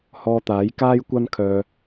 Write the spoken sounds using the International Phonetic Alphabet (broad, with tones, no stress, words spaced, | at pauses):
hɔː˧t̪aː˨˥j kaː˥jkʷɐ˥nkʰœː˧